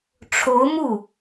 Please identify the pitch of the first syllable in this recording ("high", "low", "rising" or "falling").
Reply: rising